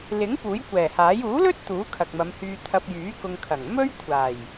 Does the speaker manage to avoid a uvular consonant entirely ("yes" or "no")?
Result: yes